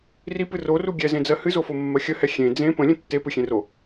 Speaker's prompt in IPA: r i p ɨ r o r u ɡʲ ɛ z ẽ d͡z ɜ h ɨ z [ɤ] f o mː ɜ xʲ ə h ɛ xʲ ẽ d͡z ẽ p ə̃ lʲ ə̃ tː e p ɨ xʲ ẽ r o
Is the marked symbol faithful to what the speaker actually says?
no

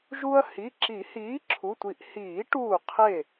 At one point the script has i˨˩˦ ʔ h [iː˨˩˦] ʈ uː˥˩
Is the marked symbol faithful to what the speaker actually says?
yes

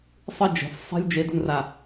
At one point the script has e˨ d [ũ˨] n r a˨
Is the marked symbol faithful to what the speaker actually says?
no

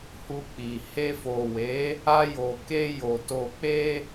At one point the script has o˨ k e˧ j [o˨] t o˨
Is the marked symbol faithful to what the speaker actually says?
yes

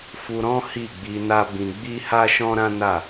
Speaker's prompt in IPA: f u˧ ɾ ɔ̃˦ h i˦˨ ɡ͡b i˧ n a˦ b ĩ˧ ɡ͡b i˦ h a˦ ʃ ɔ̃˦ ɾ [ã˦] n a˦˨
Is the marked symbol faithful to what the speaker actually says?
yes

